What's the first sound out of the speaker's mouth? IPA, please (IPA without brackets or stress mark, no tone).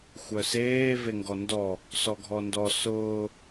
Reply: xʷ